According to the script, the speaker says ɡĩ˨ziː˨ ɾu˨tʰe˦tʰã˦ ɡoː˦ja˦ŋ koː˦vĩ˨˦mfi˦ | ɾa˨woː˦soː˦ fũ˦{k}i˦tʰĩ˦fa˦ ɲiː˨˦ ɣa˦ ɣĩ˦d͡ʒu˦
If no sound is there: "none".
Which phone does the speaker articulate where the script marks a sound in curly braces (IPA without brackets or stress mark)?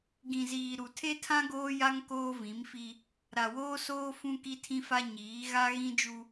k